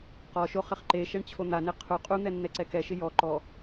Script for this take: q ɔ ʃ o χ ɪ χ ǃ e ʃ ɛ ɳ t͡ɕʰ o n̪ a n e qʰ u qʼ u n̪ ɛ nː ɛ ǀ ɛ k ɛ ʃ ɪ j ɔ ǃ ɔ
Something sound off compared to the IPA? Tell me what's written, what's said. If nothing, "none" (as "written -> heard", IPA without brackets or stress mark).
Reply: none